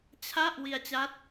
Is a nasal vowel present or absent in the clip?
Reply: absent